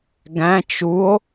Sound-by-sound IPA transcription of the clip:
ɡ æ̃ t͡ʃ u o̯

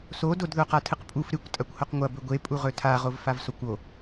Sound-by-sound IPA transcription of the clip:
s o d o d ð o q a tʰ ɨ q pʼ u f ɾ ɨ kʷ tʼ ɐ kʷ h o q ŋʷ ɐ b ɵ ɡʷ e pʼ u ʁ ɵ tʰ a ʁ o v f a v s o kʷ o

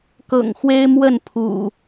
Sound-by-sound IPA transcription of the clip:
k ɤ̰˨˩ ŋ x w e˦ ɪ̯ m w ə˥˨ n pʰ ṵ˨˩

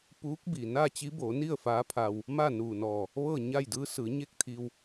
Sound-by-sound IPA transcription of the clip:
p uː˧˥ k̚ b i˩ n aː˥˨ t͡ɕ i˧˥ b oː˩˧ n i˥˨ ə̯ f aː˧˥ pʰ a˧ w | m a˥˨ n uː˧˩ n ɔː˧˩ | ʋ ɤː˥˨ ɲ a˥˨ j d ɯː˧˥ s ɯː˩˧ ɲ e˥˨ k̚ t̪ʰ iː˧ w

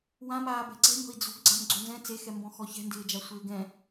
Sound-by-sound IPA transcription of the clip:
w ã m aː b ɛ̤ ǀ ɛ̤ ɲ ɔ̤ i̯ d͡z o̤ ɡ ɡ͡ǀ a̤ m ɡ͡ǀ o n z ɛ̃ t͡s e x ɛ m b ɔ̃ x ɔ ç ɛ̤ n d ɪː d͡ʒ a sʷ ɪː ɡ ɛ̃

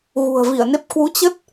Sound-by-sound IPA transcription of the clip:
ɣ ṳ˨˩ ə̯ v i˧˩ ə̯ n e˦˥ p̚ k w u˨˦ t͡ɕ ə˦˥ t̚

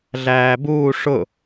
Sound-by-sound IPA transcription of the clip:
ɮ æː b uː ʂ ʊ

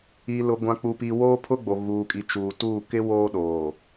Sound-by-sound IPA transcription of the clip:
i˨ l ʊ˨ ɡʷ ã˨ k͡p u˨ p i˨ w oː˦ pʰ ʊ˦ ɡ͡b o˨ ɣ uː˨ kʼ i˨ t͡ʃ uː˨ t uː˦˨ k ɪ˦ w oː˦ ɗ oː˨

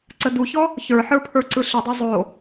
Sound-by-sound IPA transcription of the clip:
ǀ ə d u ç ɔ | ç ə˞ ħ ə˞ pʰ ə˞ ǀ ɯ ɬ ə dˤ a zˤ o

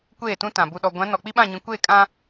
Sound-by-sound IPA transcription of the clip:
kʷ eː˦˨ t ũ˦ t ã˨ b u˨ ɗ ɔ˨ ɡʷ ã˨˦ n ɔ˨ k͡p i˦ ɓ ã˦˨ ɲ ĩ˨ kʷ eː˦˨ kʼ ã˦

